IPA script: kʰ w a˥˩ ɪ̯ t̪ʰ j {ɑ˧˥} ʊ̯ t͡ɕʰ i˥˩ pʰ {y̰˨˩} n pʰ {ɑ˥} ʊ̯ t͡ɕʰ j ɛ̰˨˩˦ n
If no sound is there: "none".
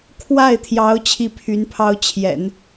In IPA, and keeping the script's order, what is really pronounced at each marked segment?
ɑ˧˥, y˧˥, ɑ˥

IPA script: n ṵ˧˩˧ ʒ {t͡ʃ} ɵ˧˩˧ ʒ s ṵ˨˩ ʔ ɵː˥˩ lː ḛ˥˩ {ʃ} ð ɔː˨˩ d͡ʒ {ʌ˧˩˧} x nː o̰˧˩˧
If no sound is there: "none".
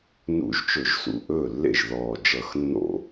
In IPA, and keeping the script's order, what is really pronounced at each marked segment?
t͡ʃ, ʒ, ʌ˧˩˧

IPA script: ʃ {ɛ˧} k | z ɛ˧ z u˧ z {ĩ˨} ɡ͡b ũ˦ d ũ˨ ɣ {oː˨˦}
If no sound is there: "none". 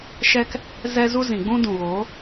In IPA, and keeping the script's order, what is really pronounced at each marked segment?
ɛ˧, ĩ˨, oː˨˦

